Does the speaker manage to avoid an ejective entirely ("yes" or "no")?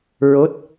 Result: yes